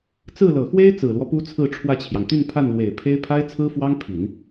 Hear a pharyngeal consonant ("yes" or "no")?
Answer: no